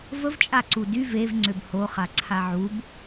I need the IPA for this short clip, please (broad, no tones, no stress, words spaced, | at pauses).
vəv t͡ʃʼaǀudy vev ŋ͡ǀøbho χaǀʰaʕub